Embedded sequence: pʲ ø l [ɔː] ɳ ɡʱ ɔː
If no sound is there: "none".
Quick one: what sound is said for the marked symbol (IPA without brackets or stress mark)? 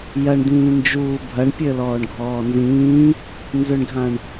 ɔː